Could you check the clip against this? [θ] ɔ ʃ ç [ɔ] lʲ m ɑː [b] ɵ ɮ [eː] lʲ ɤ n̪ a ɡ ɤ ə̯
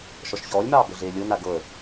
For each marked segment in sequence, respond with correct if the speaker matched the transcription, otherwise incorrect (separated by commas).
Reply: incorrect, incorrect, correct, correct